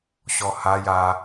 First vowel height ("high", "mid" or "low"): mid